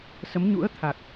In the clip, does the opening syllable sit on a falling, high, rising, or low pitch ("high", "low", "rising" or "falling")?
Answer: rising